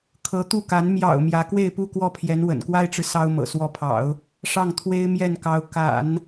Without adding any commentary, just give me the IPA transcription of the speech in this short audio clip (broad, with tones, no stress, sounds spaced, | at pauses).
kʰ ɤ˧˥ t̪ u˥˩ k a˧˥ n m j ɑ̰˨˩ ʊ̯ m j ä˧˥ k w e˥˧ ɪ̯ p u˥˧ k w ɔ˥˩ pʰ j ɛ˧˥ n w ə̰˨˩ n k w a˥ ɪ̯ ʈ͡ʂ ɻ̩˨ s ɑ˥ ʊ̯ m ɤ̰˨˩ s w ɔ˧˥ pʰ ɑ̰˨˩˦ ʊ̯ | ʂ ɑ˥˩ ŋ t̪ʰ w e˥ ɪ̯ m j ɛ˥˩ n k ɑ˧˥ ʊ̯ k a̰˨˩˦ n